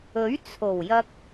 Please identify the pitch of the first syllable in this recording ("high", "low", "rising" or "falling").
rising